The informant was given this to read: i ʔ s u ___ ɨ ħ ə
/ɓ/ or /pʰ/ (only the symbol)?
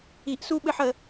ɓ